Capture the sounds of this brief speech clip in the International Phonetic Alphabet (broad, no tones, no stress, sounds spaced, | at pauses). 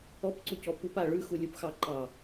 ɔ p ǀ u c ɔ p u p a ɭ ʉ x u lʲ u p x ɑ ǃ ɑ